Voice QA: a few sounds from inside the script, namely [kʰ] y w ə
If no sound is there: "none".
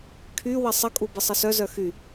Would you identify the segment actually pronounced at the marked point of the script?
kʰ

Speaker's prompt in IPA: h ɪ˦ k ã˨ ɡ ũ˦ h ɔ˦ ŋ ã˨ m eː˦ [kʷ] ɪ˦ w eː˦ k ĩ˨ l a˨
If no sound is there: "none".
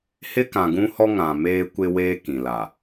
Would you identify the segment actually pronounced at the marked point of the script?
kʷ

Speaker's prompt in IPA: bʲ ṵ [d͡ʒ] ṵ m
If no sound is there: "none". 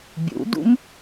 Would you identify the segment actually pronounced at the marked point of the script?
d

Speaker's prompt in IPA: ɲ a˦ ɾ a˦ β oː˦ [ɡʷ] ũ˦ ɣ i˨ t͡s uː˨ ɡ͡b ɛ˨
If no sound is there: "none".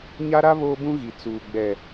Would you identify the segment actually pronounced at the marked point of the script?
b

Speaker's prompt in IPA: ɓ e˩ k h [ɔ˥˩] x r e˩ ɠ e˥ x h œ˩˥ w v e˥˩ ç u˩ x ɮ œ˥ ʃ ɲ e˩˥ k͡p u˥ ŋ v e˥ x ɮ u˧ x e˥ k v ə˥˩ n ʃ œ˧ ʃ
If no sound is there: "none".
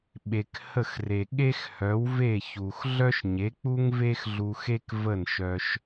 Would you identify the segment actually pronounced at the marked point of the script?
ə˥˩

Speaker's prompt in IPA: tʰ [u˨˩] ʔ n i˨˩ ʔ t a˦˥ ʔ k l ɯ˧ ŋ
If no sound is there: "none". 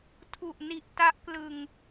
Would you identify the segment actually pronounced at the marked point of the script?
u˨˩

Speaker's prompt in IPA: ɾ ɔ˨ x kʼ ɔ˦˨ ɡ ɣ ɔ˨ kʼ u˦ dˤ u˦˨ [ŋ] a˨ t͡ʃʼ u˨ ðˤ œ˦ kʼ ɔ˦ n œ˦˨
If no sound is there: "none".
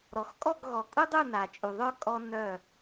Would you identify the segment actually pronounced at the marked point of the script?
n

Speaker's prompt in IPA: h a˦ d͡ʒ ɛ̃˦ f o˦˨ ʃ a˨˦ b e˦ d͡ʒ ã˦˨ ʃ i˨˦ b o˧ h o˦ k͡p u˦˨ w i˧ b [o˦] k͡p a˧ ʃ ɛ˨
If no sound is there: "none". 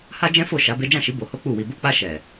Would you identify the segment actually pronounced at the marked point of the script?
o˧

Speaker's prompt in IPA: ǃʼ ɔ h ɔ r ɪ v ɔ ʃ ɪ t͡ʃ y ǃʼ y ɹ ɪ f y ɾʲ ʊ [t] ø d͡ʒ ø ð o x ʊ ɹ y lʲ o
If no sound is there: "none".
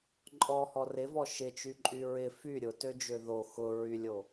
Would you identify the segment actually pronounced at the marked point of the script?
t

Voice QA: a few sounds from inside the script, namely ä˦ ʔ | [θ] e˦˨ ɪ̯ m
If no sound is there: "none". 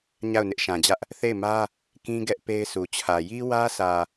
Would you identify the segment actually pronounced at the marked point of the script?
θ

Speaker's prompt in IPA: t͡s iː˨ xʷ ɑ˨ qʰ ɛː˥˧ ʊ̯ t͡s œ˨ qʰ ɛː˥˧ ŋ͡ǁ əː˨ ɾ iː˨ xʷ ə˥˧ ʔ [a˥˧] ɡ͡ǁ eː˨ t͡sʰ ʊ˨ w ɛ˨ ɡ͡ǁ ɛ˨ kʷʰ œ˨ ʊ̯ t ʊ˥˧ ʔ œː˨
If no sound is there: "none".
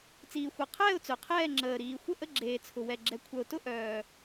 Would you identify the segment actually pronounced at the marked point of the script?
ə˥˧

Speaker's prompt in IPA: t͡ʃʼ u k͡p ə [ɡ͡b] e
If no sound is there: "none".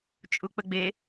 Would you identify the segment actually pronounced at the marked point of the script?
ɡ͡b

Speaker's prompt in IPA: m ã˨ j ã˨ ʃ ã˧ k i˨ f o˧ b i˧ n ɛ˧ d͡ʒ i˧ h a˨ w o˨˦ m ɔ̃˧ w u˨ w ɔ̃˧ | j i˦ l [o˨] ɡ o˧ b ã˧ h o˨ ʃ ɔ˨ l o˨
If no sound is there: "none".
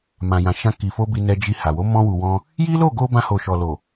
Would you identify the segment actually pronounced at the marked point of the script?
o˦˨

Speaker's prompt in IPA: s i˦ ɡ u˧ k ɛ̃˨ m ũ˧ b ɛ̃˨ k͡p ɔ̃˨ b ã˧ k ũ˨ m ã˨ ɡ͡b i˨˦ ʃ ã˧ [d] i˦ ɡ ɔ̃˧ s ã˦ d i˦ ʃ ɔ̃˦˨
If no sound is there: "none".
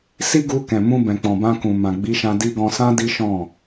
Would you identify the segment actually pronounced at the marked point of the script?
d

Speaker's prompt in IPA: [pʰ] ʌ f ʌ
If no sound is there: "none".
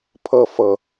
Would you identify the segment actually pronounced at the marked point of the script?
pʰ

